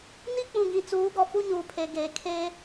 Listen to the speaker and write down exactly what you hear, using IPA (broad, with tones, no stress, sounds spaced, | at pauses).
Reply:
n i˦ k͡p ũ˨ ɡ ĩ˨ t͡s uː˨˦ ɡ ɔ˨ f u˦ ɲ uː˨ pʰ e˨ ɡ eː˨ kʰ e˦